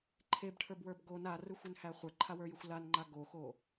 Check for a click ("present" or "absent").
present